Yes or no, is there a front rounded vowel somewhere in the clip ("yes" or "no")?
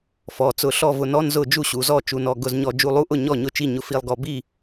no